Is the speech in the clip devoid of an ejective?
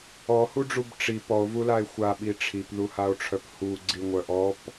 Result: yes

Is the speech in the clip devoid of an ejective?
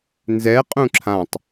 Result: no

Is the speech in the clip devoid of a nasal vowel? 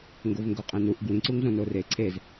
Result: no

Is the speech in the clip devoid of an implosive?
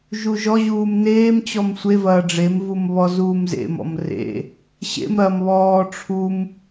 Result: yes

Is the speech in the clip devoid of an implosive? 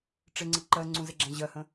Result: yes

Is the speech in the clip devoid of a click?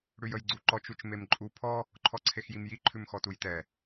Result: no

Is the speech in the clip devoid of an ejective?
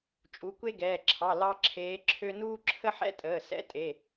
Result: no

